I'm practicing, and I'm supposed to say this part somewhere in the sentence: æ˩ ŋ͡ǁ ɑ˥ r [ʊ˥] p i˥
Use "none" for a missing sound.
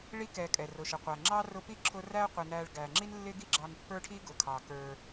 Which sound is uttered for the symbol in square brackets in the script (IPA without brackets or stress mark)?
ʊ˦